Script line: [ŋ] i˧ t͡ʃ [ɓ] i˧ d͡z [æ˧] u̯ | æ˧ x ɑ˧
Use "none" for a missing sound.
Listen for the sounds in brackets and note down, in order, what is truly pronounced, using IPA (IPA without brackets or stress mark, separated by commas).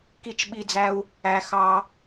k, ɓ, æ˧